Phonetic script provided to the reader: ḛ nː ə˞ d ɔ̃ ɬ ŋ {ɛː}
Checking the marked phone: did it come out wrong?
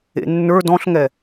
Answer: yes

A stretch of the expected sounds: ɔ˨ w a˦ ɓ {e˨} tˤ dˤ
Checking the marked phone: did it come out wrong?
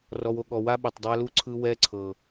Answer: no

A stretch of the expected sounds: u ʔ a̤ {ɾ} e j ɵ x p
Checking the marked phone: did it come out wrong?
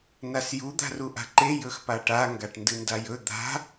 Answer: yes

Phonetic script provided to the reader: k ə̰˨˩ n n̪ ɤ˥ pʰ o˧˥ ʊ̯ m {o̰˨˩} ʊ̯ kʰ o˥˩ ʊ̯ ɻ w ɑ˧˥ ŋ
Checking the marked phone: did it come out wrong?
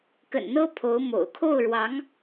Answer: no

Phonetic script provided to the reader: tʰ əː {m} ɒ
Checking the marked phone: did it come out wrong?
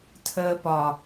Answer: yes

